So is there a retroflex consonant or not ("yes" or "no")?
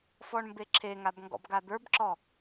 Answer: yes